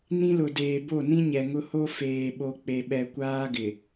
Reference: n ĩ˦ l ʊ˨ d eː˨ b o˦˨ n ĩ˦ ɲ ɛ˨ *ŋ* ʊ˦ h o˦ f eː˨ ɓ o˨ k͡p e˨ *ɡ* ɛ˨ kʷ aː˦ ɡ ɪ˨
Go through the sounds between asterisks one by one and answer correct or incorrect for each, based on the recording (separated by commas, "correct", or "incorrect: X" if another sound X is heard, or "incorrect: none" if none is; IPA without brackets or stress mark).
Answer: correct, incorrect: ɓ